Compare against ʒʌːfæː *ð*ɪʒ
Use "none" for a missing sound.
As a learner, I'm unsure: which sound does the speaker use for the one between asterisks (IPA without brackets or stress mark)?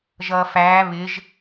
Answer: β